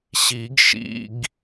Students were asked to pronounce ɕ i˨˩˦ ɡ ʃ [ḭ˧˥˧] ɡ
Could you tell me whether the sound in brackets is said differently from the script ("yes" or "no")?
no